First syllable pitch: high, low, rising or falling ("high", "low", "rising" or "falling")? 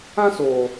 high